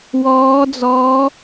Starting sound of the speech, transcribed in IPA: w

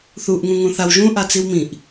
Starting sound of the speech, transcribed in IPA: θ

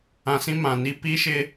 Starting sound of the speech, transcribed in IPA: ã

